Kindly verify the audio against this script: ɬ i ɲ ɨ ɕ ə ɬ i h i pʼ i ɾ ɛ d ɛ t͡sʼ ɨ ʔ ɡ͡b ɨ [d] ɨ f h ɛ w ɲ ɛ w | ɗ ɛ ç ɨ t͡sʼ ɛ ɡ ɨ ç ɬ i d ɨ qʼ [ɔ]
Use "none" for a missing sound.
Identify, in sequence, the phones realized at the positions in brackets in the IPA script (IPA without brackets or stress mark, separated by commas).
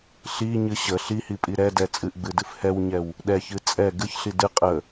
d, ə